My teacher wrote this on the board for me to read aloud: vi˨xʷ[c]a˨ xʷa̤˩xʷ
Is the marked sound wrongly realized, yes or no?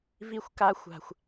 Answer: yes